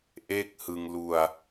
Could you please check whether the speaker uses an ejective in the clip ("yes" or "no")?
no